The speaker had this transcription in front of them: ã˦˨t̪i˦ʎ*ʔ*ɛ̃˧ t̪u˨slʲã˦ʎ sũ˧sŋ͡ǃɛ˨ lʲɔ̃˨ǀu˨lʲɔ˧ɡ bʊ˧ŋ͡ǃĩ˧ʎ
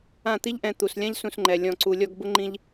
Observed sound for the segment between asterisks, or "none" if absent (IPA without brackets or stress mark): ʔ